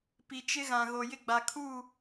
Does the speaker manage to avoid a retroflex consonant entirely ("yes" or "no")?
yes